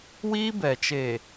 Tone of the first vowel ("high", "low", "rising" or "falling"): high